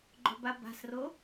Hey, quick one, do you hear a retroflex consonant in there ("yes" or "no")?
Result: no